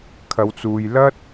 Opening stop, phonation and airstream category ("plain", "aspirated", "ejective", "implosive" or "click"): aspirated